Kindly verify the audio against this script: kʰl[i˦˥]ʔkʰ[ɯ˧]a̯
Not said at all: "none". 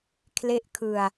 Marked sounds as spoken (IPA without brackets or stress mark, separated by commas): e˦˥, ɯ˧